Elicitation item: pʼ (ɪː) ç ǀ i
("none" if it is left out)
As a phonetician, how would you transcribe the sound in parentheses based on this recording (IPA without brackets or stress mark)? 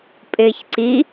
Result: ɪː